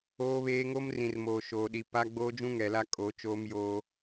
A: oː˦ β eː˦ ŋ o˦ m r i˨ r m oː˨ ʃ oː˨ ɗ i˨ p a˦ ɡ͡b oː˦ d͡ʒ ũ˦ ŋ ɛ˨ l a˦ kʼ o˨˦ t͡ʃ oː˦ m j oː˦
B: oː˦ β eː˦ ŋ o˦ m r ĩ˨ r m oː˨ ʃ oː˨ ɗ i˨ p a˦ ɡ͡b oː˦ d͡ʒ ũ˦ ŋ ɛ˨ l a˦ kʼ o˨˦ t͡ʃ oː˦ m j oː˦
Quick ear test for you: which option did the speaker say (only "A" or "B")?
B